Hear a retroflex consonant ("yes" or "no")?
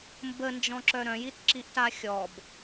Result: no